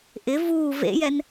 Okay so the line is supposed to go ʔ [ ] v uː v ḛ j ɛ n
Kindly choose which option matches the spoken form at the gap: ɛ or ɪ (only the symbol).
ɪ